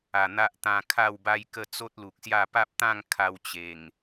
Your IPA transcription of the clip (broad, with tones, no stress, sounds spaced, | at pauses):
a˨˩ n̪ a˦ ʔ t̪ ã˧ kʰ a˥˧ w b a˦ j k ə˥˧ t͡s o˦ t̚ l u˨ k̚ s j a˥˧ p a˦ p̚ t̪ ã˥˧ ŋ kʰ a˧ w t͡ɕ e˨˩ ŋ